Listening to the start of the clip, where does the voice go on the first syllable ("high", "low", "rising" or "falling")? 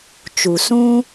low